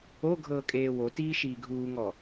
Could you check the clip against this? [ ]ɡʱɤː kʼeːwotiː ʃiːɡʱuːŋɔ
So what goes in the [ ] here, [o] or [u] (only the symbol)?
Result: o